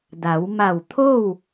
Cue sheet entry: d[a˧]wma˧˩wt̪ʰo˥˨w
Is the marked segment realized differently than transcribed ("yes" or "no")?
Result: yes